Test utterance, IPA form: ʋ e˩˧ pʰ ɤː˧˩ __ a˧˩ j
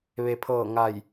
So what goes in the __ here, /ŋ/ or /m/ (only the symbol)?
ŋ